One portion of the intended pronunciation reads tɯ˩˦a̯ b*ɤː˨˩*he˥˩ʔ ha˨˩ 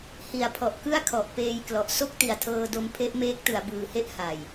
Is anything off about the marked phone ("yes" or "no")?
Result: yes